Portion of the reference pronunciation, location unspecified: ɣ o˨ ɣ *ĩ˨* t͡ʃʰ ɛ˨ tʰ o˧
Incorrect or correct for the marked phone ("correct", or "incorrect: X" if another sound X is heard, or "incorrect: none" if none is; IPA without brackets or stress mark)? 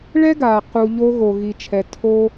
incorrect: i˨